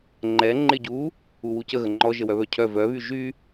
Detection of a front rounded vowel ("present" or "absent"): present